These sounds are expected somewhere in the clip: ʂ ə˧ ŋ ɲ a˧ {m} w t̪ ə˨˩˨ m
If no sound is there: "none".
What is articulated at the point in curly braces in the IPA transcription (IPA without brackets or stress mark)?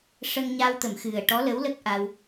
none